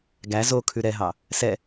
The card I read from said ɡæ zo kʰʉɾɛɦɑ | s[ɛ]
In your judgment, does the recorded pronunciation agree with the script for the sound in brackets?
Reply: yes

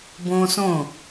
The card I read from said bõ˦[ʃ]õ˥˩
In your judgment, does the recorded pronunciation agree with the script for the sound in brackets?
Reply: no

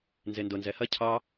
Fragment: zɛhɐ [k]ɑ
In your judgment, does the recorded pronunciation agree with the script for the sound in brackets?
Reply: no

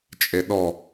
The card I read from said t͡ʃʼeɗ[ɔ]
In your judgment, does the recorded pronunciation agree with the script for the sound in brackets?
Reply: yes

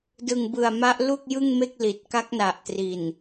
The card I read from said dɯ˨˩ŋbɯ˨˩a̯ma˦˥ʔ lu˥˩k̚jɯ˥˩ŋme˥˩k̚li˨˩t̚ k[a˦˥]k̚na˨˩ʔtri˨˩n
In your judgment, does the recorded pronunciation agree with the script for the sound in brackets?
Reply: yes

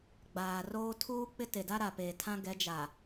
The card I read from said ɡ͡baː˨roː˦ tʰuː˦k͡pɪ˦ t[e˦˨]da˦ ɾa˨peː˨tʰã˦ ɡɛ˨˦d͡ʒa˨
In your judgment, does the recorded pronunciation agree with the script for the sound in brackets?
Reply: no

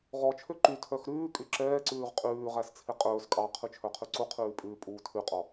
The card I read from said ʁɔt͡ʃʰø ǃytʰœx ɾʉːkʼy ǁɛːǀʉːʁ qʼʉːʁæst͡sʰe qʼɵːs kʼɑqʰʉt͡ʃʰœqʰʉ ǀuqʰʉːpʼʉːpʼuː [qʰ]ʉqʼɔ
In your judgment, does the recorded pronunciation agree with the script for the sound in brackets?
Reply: no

